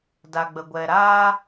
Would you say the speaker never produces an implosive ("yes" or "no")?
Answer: yes